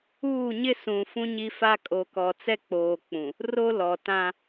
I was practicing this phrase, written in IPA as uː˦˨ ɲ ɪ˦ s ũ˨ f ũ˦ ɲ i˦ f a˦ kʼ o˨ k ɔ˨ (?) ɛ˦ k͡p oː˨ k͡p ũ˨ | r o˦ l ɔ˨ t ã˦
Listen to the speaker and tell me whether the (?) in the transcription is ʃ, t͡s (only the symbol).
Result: t͡s